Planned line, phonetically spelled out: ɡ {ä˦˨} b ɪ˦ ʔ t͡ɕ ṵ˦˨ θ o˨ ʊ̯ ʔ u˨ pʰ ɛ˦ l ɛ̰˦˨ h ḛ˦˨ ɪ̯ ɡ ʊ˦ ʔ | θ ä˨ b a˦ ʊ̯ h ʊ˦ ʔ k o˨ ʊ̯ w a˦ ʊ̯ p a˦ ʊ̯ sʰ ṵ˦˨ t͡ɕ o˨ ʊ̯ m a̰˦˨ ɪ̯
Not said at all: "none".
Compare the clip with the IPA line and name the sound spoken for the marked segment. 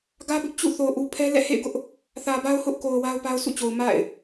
ä˦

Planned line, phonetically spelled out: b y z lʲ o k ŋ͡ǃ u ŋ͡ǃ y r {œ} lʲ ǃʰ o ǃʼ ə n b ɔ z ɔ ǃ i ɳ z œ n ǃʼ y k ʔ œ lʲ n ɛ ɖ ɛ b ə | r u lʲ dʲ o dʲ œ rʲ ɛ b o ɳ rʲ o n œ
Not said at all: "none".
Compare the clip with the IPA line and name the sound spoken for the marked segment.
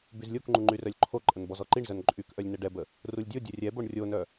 œ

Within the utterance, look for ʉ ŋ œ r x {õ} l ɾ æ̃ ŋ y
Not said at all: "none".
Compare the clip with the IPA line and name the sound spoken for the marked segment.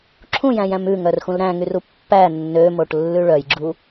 ũ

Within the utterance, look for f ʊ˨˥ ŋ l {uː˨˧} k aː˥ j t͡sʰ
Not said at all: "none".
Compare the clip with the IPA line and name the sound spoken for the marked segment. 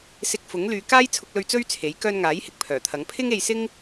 yː˨˧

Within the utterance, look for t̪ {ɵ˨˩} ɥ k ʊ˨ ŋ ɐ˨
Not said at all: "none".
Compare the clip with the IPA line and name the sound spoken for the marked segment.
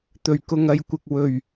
ɵ˨˩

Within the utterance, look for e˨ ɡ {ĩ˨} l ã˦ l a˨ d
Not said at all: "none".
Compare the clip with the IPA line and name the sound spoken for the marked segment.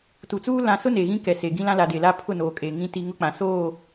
ĩ˦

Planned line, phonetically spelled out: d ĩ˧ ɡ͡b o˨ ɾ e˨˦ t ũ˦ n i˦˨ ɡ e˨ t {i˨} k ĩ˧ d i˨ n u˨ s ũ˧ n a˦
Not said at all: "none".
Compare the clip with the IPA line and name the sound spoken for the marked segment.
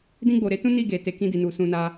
e˨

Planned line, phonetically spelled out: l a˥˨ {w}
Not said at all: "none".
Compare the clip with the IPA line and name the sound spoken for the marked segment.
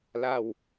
w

